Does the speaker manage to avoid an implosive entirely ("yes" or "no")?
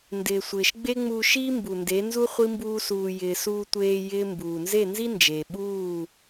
no